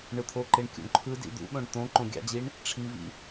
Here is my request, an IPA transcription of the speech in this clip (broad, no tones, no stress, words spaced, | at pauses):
ɳɯt̪ʰoǃeɳ kʲṵɳǃʰɯdḭ d̪ṵɓõɳ t̪õ ǃõɡʲɑ̰d͡ʑiɳ | ʈ͡ʂʰivḭ